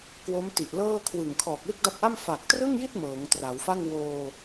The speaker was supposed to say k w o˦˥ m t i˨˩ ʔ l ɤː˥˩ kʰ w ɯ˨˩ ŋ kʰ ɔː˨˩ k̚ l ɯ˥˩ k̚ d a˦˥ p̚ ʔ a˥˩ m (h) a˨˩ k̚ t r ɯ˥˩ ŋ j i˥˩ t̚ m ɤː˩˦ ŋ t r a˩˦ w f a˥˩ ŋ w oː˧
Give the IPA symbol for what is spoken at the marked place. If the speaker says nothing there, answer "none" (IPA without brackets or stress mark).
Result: f